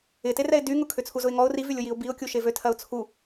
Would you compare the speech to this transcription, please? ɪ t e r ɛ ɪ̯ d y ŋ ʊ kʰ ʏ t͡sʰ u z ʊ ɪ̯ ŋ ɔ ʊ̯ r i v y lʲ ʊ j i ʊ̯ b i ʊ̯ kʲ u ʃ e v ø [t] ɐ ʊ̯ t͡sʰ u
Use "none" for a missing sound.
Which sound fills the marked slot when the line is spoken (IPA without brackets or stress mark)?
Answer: tʰ